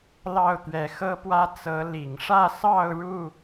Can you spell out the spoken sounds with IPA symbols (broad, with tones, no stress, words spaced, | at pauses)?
lɑ˥˨ʊ̯t̪ɥɛ˨˦xɤ˦pwä˦ t͡sɤ˨˦ li˨˩ŋʂä˥˨sɑ˥˨ʊ̯ ɻu˥˨